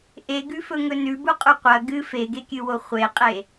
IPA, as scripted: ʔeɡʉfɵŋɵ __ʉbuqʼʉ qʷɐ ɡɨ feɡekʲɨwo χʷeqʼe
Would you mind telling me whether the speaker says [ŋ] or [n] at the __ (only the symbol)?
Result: n